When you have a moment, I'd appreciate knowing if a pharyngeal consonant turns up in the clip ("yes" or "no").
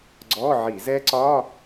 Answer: yes